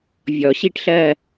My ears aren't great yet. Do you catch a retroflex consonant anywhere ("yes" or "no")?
yes